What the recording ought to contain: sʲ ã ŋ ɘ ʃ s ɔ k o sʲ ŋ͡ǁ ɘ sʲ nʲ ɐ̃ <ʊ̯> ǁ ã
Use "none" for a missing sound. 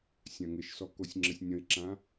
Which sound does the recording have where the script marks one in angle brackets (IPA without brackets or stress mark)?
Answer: ɪ̯